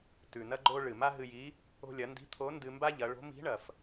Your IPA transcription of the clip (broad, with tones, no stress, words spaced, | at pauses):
tʉ˩nɐ˥ ɡ͡ǃo˥ ɭɨ˩ma˥ɦɨ˧ji˧˥ | o̤˧lʲɐ˩˧ndi̤˧˥ t̪ʰo˧˥ ndɨ˧mba˥ʎɐ˩˧ɭo̤˧˥ mi̤˧˥ ɳɐ˩f